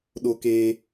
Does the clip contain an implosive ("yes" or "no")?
yes